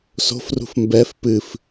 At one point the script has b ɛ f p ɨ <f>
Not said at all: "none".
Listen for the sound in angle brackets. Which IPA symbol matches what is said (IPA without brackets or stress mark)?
f